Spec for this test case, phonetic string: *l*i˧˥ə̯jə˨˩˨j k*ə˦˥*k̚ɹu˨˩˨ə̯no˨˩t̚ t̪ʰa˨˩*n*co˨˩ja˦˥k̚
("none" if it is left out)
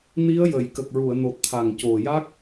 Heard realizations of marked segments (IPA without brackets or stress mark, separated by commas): n, ə˨˩, ŋ